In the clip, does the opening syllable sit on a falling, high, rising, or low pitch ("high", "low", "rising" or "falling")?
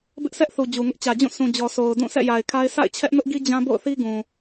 high